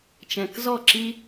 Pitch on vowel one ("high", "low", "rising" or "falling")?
low